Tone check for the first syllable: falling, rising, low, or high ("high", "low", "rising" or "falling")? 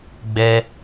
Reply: high